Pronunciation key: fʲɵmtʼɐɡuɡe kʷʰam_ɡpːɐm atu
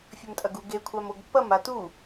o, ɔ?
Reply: o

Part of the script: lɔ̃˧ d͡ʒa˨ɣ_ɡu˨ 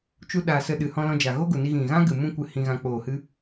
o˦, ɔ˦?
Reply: o˦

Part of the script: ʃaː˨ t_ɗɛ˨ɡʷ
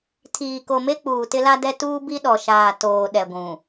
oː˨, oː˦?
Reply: oː˨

